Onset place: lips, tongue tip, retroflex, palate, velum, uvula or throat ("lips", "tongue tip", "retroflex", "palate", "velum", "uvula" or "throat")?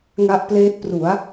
velum